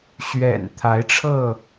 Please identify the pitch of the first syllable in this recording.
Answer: low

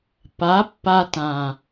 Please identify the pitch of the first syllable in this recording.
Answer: rising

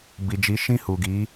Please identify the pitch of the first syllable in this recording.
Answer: low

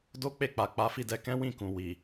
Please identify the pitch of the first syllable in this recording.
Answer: high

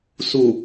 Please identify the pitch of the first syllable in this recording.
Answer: low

